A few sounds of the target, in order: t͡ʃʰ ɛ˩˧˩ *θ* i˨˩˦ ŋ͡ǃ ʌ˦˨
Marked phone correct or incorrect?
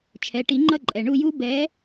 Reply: incorrect: ʈ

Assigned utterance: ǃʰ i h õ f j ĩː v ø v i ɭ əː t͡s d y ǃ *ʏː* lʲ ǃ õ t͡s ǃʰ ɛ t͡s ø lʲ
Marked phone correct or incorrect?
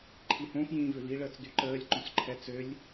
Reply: incorrect: əː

